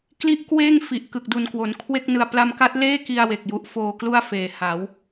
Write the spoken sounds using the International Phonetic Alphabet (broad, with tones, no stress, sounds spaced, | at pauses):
k l i˦˥ ʔ k w eː˥˩ ŋ f i˨˩ ʔ k ɯ˨˩ k̚ d u˨˩ n k w o˩˦ n kʰ w e˥˩ k̚ n ɯ˧ a̯ p l a˧ m k a˦˥ t̚ l eː˥˩ k i˧ a̯ w e˨˩ k̚ j u˦˥ ʔ f oː˧ k l u˥˩ a̯ f eː˨˩ h a˩˦ w